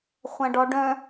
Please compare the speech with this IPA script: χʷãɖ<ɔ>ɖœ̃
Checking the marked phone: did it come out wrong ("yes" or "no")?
no